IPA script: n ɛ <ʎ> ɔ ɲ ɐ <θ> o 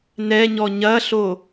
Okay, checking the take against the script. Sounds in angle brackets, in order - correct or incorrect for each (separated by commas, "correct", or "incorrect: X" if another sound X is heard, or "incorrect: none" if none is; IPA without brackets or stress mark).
incorrect: ɲ, incorrect: ɬ